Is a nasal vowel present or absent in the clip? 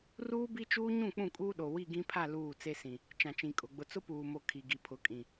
present